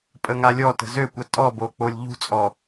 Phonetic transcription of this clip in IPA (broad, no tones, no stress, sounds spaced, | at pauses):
pʼ ə ŋ a lʲ ɔ t ə̤ z ø kʷ ə tʼ ɔ b o k͡p o lʲ ʎ ṳ t͡sʼ ɔ